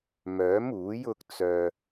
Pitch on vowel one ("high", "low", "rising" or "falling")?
rising